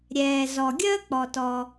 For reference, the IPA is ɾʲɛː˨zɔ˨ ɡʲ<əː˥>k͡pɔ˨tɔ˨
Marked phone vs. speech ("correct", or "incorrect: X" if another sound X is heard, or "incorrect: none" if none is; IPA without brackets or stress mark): correct